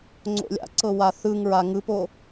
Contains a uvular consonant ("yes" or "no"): no